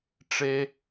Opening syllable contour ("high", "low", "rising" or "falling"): low